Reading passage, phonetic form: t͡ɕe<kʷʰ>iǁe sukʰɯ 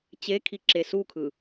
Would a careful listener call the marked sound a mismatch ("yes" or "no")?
yes